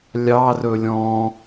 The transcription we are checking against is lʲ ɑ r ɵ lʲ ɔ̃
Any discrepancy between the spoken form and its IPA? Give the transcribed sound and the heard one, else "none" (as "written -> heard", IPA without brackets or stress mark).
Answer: none